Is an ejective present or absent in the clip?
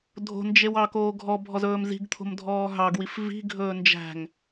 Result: absent